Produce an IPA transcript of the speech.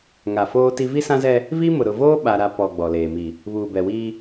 ŋ a˨ f oː˦ t i˦ v i˦ s ã˦ z ɛ˦ | v i˦ m ʊ˨ ɾ ʊ˨ v oː˦ ɓ a˦ ɾ a˦ p ɔ˨ ɡ͡b ɔ˨ l eː˨ m i˨ | β uː˨ b ɛ˨ w iː˦

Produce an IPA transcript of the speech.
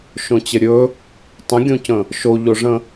ʃ õ t͡ɕ ə ɾʲ ɵ | tˤ ə̃ ɡʲ õ c ə̃ | ʃ o ʎ o ʐ ə̃

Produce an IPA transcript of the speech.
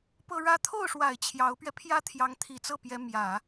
p ɤ˥ ɻ ä˥ t̪ʰ o˥˩ ʊ̯ ʂ w a˨˩ ɪ̯ t͡ɕʰ j ɑ˧˥ ʊ̯ p ɥ ɛ˧ pʰ j ä˥ t̪ʰ j ɑ˧˥ ŋ t̪ʰ i˨˩ t͡s ɤ˥˩ p j ɛ˧˥ m j ä˨˩˦

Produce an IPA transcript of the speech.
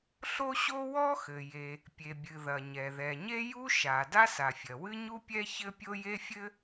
ɬ o˥ ɕ o˥ w ɔ˥ x ɘ˩ j e˩ | pʲ e˩ bʲ ɨ˩ ð ɐ˩ ɲ ɛ˩ ð ɛ˩ ɲ e˥ j u˥ ʃ a˩ d a˥ s a˩ fʲ ɐ˩ w ɨ˥ ɲ u˥ pʲ ɛ˥ ç ɘ˥ pʲ o˥ j e˥ fʲ ɘ˥

